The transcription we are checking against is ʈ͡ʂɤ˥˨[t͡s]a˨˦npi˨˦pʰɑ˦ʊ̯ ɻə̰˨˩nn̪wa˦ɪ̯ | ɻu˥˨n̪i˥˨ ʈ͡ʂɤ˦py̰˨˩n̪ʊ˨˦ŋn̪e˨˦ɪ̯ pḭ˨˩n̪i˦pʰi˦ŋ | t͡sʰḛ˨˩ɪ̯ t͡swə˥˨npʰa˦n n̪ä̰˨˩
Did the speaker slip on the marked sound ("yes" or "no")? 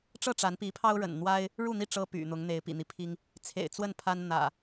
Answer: yes